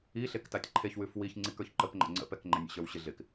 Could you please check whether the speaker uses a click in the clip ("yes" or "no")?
yes